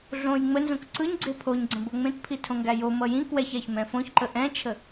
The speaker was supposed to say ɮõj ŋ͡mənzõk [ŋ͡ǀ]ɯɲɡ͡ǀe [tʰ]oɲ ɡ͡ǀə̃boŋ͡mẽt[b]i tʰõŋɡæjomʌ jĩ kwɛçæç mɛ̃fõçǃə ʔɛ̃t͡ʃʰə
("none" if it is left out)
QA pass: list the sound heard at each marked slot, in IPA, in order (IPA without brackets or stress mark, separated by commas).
ǀ, pʰ, pʰ